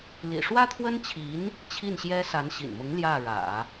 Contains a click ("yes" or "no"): no